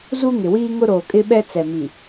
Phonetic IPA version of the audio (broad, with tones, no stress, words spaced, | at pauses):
zu˦ŋɪ˨wiː˦ ŋʊ˦ɾoː˨kʼɪ˦ɓɛ˦ t͡sɛ˨mi˨